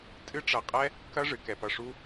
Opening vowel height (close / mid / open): close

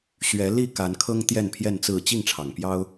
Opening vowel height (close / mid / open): mid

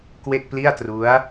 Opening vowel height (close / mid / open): mid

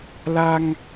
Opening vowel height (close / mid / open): open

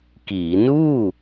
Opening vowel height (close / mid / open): close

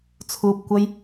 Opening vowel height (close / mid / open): close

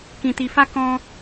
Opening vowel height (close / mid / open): close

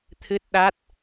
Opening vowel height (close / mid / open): close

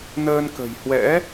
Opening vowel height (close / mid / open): mid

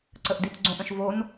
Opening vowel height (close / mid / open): mid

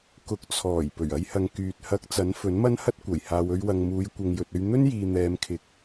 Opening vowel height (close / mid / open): close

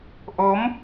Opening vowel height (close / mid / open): mid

